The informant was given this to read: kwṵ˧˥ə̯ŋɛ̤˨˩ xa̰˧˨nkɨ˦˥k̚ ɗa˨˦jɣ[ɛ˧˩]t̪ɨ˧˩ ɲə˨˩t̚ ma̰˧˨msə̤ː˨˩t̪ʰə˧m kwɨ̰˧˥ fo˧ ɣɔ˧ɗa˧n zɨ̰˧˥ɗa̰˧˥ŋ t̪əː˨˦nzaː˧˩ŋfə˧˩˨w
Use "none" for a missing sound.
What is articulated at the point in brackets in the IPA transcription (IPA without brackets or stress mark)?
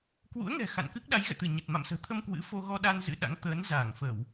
ɛ̰˧˨